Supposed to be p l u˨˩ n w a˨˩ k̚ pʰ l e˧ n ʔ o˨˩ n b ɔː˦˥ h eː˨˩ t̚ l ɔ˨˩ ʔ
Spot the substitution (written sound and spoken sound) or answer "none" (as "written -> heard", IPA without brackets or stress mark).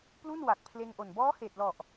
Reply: u˨˩ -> u˥˩